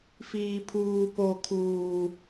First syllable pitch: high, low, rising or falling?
low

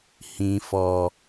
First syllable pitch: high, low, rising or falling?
low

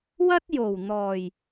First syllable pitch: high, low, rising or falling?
high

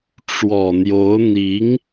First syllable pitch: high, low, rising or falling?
low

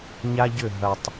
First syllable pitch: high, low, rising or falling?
high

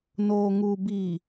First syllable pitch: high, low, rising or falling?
low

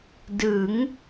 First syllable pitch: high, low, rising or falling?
rising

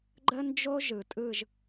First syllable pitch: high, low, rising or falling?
high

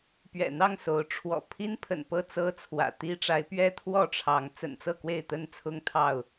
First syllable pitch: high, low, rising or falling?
low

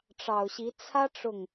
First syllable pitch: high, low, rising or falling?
low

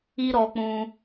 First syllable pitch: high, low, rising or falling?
high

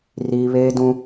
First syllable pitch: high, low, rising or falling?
high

